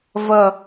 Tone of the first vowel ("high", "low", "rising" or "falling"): low